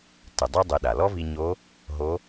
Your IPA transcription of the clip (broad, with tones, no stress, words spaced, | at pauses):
tɨ˩dˤɨ˧ dˤɨ˩˧ɗa˩ lɔ˥vi˧ɲo˧˥ | ɦo˧˥